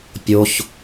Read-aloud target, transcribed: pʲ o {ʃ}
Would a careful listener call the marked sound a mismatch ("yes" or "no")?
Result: yes